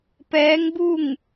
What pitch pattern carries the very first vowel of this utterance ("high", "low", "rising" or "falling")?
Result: rising